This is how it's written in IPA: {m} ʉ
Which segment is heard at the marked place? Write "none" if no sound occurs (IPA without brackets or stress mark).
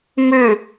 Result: m